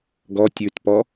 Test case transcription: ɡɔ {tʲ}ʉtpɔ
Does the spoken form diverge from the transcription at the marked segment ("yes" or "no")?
no